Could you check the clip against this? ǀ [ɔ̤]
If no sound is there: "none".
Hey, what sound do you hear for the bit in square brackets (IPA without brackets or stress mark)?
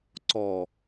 ɔ